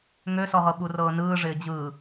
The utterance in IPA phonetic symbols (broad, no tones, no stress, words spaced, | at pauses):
ŋøsɔʁɤ ɓurɤːnɯː ʐɪːd͡ʑɯː